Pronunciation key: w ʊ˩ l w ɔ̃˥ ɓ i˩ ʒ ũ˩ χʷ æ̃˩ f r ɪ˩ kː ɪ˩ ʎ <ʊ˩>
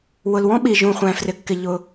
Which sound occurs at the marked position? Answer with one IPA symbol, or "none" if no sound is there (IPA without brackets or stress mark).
ʊ˩